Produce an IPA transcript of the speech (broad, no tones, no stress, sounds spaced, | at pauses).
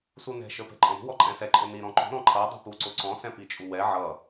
s u n ɛ̤ ʃ ə˞ p ɛ̤ ǃʼ ɔ̃ ɾ ṳ w ɔ ǃʼ ɛ̃ s ɛ ǃʼ ʊ n i ɾ ɔ̃ ǃ ṳ ɾ ɔ̃ ǃʰ ʌ dˤ ṳ p u ǀ ʊ ǀ ɔ̃ s ɛ̃ p i t͡ʃʼ u w ɛ ʕ ʌ